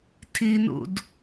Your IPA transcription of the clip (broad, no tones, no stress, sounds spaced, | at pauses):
tʰ i n ṵ d